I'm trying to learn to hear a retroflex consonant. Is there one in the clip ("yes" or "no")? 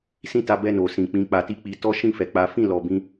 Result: no